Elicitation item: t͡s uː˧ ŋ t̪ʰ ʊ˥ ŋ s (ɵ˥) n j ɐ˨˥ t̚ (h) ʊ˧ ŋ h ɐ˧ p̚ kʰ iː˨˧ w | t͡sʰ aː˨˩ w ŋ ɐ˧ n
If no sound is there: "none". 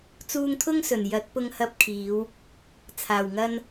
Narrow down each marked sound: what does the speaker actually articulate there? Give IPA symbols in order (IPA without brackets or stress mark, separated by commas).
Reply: ɵ˨˩, p